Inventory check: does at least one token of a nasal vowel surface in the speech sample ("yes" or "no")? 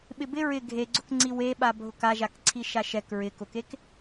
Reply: no